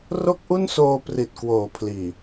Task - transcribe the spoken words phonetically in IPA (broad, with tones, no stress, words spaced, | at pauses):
ro˥˩k̚ʔu˥˩n soː˧pri˨˩t̚kwoː˩˦ pʰliː˨˩